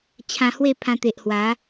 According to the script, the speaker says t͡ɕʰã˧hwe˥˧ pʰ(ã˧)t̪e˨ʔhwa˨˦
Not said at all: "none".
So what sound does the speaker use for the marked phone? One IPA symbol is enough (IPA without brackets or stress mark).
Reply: ã˧